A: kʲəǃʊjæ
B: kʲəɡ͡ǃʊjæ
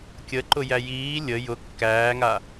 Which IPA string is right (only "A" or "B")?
A